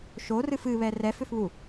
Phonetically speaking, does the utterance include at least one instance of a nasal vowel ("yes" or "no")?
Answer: no